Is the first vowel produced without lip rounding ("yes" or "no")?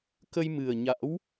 yes